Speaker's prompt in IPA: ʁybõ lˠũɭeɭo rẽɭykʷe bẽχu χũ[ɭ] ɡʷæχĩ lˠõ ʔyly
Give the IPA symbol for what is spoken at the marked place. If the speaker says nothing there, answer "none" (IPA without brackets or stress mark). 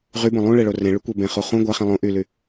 none